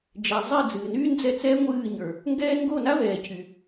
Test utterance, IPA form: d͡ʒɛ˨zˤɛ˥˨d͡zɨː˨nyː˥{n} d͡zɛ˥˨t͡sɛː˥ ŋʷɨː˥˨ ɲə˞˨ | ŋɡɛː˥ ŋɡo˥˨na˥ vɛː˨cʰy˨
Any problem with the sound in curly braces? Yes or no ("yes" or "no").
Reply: no